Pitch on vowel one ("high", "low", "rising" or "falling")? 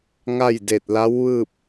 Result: falling